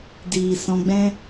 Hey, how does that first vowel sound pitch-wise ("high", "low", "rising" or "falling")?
low